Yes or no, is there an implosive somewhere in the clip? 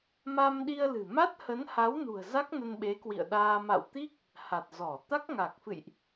yes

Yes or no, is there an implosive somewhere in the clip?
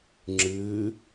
no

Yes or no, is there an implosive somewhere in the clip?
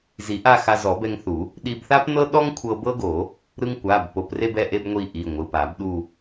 yes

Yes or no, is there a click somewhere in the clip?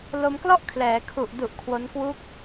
no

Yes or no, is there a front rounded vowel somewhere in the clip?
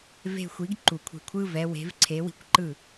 no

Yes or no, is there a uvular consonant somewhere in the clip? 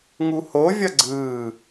no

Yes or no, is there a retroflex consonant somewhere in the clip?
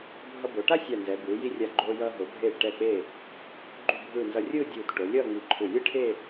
yes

